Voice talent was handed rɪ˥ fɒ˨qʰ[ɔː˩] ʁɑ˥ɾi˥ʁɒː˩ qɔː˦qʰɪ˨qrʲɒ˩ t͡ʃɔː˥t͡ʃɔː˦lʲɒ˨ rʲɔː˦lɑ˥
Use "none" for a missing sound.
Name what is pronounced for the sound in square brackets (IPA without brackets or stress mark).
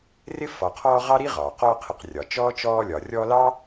ɔː˦